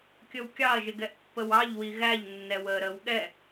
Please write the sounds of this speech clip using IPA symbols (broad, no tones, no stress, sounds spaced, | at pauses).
kʲ ə w kʲ ɑ ɐ̯ ʒ ɪ ɡ ɛ ʔ pː ə w ɑ ʎ w i ɣ æ ʎ nː ɛ w əː ɾ ə w ɠ ɛ